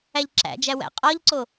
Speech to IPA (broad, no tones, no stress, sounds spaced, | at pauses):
æ ʎ ǁ æ̰ d͡ʒ æ w æ̰ qʼ ɒ ʎ ǀ o